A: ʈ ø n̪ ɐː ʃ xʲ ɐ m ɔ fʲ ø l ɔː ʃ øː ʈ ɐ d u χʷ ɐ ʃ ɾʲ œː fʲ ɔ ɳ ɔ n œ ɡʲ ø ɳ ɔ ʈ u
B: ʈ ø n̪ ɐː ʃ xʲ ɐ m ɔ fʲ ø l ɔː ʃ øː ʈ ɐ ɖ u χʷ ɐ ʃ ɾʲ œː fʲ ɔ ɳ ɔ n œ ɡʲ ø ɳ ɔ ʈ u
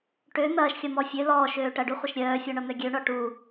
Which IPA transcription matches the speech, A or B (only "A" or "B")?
B